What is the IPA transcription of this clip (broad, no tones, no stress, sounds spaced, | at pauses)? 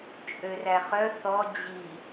t͡ʃʼ ø r æ χ œ θ ɔ d͡ʑ i